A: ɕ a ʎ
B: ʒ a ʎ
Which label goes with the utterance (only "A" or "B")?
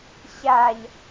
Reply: A